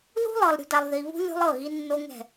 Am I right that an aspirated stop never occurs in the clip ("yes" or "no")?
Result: yes